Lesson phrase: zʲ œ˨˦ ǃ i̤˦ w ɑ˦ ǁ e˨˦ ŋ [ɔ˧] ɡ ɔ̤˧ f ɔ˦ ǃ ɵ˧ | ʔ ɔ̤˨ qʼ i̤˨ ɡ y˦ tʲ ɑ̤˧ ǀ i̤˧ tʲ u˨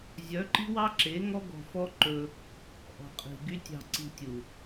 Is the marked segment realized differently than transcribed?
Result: yes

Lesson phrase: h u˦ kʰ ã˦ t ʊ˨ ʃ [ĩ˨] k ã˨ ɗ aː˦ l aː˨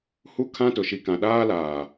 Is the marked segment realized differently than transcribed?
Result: yes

